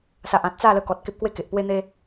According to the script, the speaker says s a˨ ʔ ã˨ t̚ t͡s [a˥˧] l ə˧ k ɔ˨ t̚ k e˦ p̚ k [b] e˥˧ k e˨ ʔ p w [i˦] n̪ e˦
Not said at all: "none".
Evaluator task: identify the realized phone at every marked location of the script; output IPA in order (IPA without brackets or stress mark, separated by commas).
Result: a˥˧, w, e˦